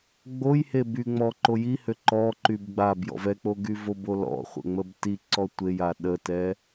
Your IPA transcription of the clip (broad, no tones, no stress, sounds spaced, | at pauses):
ɡ͡b o j h e b y ŋ͡m ɔ ǃ o j i h ø ǃ ɔ ǃ y b ɡ͡b a b j ɔ̰ v ɛ k͡p o ɡ y v o b o l ɔ̰ χʷ ə̰ ŋ͡m ə b t i ǀ ɔ tʷ e j a ɗ ə t ɛ